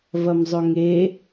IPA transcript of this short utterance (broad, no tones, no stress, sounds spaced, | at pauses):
v ɐ m zˤ ɵ ŋ e